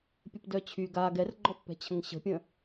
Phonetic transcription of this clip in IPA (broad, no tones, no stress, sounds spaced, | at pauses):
pʲ ə p d œ t͡ɕʰ y ɡ a ɡ ɛ r ɡ͡ǃ ɔ pː ɛ̤ t͡ɕʰ ə̃ ŋ ɕ ə̤ pʲ ə̃